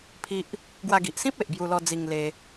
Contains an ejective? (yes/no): no